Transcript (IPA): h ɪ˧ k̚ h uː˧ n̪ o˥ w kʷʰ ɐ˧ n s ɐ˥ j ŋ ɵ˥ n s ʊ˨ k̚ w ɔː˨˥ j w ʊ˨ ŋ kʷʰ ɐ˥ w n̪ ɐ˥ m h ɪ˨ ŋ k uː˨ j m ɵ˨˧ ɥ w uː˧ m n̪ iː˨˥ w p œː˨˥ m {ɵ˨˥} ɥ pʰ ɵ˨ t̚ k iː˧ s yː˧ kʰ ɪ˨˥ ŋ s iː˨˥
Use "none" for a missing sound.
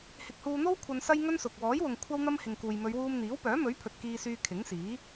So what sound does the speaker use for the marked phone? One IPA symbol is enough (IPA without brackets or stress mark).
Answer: ɵ˨˥